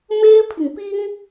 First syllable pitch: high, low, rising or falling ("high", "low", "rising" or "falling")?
high